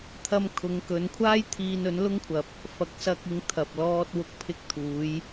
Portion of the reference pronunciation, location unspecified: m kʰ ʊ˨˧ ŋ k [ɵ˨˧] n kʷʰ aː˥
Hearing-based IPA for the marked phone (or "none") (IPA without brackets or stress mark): ɵ˨˧